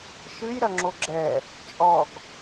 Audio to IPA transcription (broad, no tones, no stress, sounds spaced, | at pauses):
ʃ ɨ j ɾ ɐ ŋ͡ǁ o ɡ͡ǁ ɛ | t͡ʃʼ ɔ ɡ